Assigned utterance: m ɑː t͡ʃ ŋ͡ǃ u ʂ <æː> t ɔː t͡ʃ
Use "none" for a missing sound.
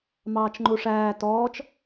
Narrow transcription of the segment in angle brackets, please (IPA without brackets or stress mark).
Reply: æː